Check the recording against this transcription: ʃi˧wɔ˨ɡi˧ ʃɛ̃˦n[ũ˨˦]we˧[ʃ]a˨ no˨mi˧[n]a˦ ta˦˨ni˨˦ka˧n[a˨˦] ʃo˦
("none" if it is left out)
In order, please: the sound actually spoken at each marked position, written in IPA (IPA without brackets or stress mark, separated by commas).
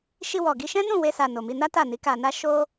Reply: ũ˦˨, s, n, a˦